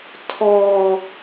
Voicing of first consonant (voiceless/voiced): voiceless